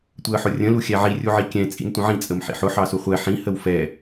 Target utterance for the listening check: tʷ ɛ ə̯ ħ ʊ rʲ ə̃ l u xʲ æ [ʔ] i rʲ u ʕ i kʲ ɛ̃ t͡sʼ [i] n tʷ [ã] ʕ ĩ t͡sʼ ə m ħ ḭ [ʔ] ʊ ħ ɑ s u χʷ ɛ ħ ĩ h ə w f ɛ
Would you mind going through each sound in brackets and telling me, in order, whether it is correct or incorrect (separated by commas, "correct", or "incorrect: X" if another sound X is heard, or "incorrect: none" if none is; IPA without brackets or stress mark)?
incorrect: ʕ, incorrect: ḭ, incorrect: ə̃, incorrect: ħ